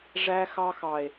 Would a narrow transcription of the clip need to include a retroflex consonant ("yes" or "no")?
yes